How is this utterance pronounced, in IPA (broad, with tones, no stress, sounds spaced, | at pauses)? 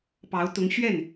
p ɑ˧˥ ʊ̯ t̪ ʊ˧˥ ŋ ɕ ɥ ɛ˥˩ n